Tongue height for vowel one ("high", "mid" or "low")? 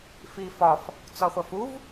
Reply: high